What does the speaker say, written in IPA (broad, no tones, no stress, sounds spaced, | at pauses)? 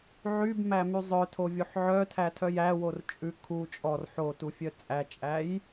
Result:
ʕ y b m æ m y zˤ œ tʰ o vʲ o ħ ʕ œ tʰ æ tʰ œ j æ w o r t͡ʃʼ ʉ kʰ u t͡ʃʼ ɔ r ħ o t u fʲ œ t͡sʼ æ t͡ʃʼ æ j